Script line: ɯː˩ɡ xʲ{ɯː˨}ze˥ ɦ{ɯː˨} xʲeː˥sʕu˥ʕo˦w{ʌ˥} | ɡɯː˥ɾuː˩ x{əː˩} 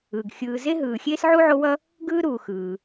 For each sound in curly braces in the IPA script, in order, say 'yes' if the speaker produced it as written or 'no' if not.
yes, yes, yes, no

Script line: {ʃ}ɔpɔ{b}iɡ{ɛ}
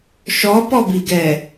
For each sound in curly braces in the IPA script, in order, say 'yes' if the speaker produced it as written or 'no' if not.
yes, yes, yes

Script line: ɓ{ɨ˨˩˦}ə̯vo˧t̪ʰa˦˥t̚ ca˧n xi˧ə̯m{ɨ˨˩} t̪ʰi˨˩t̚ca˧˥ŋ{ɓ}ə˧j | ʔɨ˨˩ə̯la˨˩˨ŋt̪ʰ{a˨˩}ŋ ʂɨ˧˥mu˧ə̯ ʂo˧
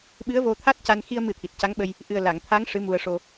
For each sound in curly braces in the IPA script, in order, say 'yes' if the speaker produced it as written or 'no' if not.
no, no, yes, no

